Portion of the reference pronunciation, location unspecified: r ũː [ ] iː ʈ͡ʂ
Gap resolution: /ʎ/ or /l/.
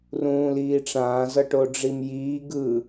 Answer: l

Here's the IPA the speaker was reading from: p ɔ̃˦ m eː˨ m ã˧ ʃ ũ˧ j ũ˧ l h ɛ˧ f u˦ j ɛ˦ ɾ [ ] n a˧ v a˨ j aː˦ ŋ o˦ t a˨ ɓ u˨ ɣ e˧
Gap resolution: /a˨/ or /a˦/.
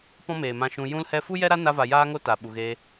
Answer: a˦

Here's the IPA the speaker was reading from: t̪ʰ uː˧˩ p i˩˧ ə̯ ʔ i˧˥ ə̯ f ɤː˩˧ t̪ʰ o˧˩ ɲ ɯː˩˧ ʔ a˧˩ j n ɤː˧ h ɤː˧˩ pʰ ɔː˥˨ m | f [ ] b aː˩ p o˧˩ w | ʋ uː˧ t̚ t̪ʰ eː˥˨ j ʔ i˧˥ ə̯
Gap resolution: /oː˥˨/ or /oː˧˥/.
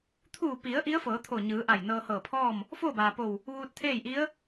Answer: oː˥˨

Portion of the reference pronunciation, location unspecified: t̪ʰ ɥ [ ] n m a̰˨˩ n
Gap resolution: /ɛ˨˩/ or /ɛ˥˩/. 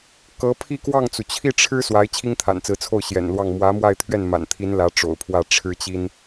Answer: ɛ˥˩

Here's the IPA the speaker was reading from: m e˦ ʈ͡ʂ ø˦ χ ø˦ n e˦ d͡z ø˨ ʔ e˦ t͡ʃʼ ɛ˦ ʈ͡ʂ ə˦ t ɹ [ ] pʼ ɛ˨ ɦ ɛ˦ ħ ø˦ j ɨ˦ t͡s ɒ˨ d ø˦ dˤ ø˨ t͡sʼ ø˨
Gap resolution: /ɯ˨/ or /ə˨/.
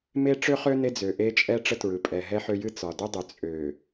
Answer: ɯ˨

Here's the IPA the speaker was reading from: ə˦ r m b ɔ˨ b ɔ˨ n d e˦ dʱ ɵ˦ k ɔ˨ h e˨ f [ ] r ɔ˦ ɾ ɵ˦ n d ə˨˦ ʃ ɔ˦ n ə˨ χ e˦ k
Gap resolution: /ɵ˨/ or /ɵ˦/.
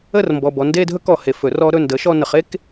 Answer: ɵ˨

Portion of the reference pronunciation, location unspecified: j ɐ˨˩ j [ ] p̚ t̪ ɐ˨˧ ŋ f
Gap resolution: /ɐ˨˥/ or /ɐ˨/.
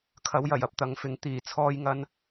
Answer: ɐ˨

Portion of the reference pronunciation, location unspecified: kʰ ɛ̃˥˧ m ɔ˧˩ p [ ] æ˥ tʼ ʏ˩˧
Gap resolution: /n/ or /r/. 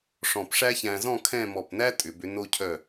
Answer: n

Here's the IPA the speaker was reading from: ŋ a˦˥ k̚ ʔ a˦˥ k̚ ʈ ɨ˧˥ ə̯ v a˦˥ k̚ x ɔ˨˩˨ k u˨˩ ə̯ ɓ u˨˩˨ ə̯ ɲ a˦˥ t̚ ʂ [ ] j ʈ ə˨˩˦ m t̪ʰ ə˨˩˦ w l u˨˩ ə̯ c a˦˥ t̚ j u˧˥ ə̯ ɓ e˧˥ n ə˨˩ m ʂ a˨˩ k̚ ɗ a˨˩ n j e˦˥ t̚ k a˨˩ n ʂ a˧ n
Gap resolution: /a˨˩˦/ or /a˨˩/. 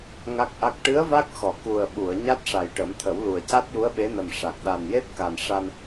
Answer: a˨˩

